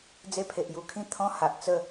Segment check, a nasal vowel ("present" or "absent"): present